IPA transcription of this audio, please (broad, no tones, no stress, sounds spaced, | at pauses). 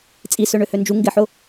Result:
t͡sʼ i s ø ɳ ø h ø n d͡ʒ u ŋ ɡ ɪ ħ ʊ